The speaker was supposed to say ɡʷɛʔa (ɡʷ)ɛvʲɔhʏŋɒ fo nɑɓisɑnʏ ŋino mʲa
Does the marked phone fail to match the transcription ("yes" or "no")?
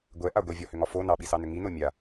no